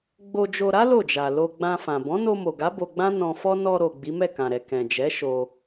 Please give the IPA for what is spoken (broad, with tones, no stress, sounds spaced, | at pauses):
ɡ͡b o˧ d͡ʒ o˧ ɾ a˦ l o˦˨ d͡ʒ a˨ l o˧ ɡ͡b ã˧ f ã˨ b ɔ̃˨˦ n o˧ m o˨ ɡ a˨˦ b o˧ ɡ͡b ã˦ n ɔ̃˧ f ɔ˦ n ɔ˧ ɾ o˨ ɡ͡b i˨˦ m ɛ˦˨ k ã˨ ɾ ɛ˨ k ɛ̃˨ d͡ʒ ɛ˨˦ ʃ o˧